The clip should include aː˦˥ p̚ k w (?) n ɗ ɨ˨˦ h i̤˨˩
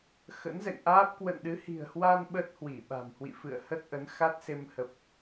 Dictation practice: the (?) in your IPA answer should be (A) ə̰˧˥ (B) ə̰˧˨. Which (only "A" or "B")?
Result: B